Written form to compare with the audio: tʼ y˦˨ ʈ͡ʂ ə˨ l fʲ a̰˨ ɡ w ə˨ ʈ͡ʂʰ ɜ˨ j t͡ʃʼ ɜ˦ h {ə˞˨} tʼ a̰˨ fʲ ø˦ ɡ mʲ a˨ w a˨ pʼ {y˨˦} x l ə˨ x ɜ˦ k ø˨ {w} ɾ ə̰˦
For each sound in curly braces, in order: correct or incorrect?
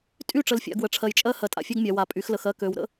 incorrect: ɜ˨, correct, correct

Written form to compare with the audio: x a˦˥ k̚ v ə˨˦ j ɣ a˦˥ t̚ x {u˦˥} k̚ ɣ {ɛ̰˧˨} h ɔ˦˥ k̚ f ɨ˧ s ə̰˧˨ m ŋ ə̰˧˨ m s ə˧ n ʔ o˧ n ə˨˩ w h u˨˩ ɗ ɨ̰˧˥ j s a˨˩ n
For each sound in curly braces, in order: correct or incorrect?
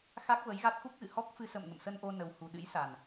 correct, incorrect: ɨ̰˧˨

